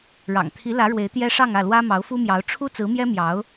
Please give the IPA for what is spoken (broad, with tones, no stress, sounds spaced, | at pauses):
ɻ ɑ̰˨˩ ŋ t̪ʰ i˧˥ l ä˧˥ ɻ w e˧˥ ɪ̯ t̪ j ɛ˥ ʂ ɑ˥˧ ŋ ä˥˩ l w ä˥ m ɑ˧˥ ʊ̯ f u˥ m j ɑ˧˥ ʊ̯ ʈ͡ʂʰ u˥ t͡s ɹ̩˧˥ m j ɛ˥ m j ɑ˧˥ ʊ̯